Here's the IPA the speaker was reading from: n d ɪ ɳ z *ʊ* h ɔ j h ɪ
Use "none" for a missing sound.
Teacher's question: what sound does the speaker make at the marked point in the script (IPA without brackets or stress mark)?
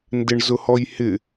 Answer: ʊ